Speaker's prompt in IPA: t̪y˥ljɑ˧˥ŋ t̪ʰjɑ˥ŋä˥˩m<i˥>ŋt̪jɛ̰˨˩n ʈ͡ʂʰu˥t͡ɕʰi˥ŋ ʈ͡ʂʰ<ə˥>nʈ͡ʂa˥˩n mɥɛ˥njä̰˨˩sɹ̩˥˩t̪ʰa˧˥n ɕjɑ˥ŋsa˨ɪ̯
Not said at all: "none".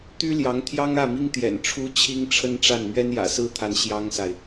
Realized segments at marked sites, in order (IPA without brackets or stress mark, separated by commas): i˥, ə˥